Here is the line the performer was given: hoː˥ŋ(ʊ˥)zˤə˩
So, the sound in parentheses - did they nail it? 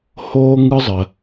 no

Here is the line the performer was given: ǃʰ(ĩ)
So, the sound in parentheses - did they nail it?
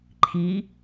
no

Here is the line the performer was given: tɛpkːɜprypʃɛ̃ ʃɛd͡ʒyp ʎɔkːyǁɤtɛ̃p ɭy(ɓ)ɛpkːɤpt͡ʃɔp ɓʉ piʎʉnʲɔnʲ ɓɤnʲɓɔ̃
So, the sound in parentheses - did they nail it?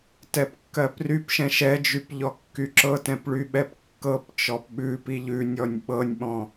yes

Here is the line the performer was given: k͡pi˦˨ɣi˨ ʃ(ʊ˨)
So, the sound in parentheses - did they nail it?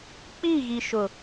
yes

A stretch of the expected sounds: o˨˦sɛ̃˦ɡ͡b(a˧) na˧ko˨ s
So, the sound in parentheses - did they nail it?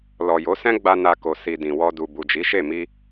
yes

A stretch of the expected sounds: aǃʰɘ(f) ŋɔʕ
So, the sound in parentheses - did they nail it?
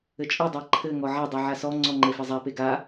no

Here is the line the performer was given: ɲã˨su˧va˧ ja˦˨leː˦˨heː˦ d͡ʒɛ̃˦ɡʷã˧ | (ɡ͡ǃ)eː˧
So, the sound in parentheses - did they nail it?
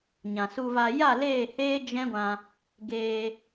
no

